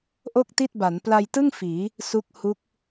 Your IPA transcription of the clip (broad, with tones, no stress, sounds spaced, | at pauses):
ʔ o˥˩ k̚ t i˥˩ t̚ b a˩˦ n p l a˧ j t ɯ˥˩ ŋ f iː˩˦ | s u˦˥ k̚ h u˦˥ k̚